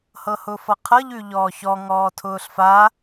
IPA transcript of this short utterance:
hɤhʊːfʌqʰɤ ʎʉʎɔːçɔ ŋɔːtʰʊːɬfa

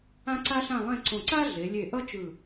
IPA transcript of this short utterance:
ã˥ǀa˥ɬã˥˧lˠẽ˥˧ ǀõ˧˩ǀa˥ ɮe˩˧lʲe˧˩ ʔʌ˥t͡ʃɯ˧˩

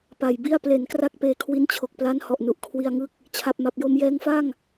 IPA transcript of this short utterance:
pa˨˩jbi˥˩a̯ ple˩˦nkra˦˥k̚ peː˧kʰwi˦˥nt͡ɕʰo˨˩k̚pla˦˥n hɔ˨˩ʔnu˨˩ʔ kʰwi˧a̯ŋɯ˦˥k̚ | t͡ɕʰa˨˩p̚ma˨˩p̚jo˧m jɛː˧ŋfa˥˩ŋ

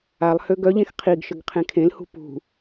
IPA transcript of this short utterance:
alˠhø ɡœʎẽx qʰiɡʃəɡ qʰẽkʰẽlhṳ pṳ

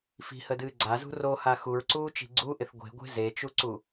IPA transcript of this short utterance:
fi̤hədɨː ɡ͡ǀazṳ roha xuɹǀuːt͡ʃi̤ ɡ͡ǀuʔɪθ ɡʷe̤ɡʷe̤ zet͡ʃuǀu

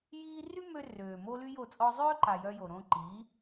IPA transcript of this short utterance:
jiː˦ ry˦mø˧ røː˨ mo˦ly˦jo˦˨ t͡sʼɔ˧zˤøː˦ǃa˨ jœ˧jo˨ ɾõ˧ǃi˨˦

